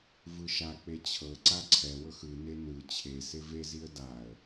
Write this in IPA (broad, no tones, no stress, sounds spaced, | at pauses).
v ɯ ʃ a k͡p e t͡ɕʰ ɤ ǀ a ǀʰ ɛ w ɤ x ɯ n e n ɯ t͡ɕʰ e s e v e z i ə̯ d a ə̯